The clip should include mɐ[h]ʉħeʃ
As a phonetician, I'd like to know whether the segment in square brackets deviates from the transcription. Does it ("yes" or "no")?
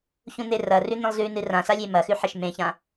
yes